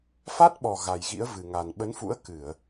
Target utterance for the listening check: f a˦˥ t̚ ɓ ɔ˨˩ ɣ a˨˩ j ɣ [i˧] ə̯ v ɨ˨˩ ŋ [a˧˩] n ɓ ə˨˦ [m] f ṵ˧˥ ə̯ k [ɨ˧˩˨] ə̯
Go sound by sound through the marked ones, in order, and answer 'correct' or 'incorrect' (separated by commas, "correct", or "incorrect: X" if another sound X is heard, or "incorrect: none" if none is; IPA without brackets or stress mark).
incorrect: ḭ˧˥, incorrect: a˨˩, incorrect: n, correct